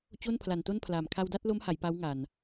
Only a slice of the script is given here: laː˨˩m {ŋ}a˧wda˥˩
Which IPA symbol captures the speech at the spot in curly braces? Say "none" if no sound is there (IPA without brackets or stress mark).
kʰ